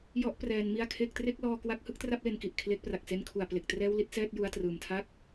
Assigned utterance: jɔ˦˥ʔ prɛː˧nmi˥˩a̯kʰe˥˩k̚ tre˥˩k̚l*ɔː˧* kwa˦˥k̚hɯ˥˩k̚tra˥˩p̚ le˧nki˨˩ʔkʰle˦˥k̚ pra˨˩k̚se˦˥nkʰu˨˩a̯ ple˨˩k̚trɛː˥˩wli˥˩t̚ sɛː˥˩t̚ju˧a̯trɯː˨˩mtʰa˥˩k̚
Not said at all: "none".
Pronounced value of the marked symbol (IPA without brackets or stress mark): ɔː˧